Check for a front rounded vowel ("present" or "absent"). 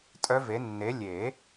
present